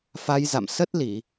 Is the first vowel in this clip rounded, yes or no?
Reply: no